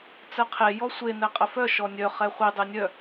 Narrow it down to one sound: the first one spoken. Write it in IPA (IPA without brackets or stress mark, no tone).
t͡s